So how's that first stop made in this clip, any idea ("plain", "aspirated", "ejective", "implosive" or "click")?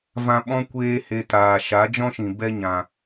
implosive